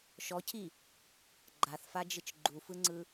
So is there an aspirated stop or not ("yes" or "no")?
yes